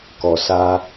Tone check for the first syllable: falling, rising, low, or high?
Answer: low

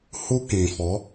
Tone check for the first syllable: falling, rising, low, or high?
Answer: high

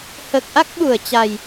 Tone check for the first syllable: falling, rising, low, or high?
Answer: low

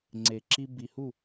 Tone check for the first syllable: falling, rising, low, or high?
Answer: low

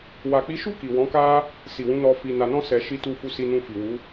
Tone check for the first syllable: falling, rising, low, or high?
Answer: low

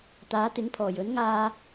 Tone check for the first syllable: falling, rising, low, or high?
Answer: rising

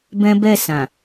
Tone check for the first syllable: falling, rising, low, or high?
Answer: high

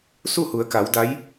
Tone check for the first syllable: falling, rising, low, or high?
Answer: falling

